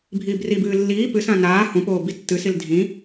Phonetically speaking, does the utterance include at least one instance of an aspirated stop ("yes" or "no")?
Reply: no